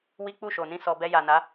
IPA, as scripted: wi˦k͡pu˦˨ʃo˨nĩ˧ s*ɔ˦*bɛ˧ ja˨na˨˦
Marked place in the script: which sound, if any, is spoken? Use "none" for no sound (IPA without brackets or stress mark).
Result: ɔ˨